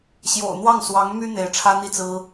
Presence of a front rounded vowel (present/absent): present